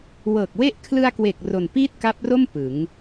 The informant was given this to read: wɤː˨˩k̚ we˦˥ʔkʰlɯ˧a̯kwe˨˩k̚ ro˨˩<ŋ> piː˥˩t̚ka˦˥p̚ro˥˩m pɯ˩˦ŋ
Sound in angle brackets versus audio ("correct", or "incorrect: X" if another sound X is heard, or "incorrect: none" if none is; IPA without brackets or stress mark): incorrect: n